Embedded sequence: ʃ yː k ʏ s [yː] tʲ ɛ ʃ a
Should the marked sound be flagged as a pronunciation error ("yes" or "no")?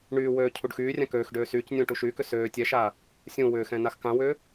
yes